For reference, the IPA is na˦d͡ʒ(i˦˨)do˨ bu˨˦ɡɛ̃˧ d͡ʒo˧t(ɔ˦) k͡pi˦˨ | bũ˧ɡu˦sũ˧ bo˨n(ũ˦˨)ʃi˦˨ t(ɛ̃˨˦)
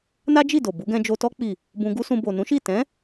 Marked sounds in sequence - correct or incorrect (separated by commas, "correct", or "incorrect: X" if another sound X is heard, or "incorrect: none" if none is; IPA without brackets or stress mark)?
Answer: correct, correct, incorrect: ũ˨˦, correct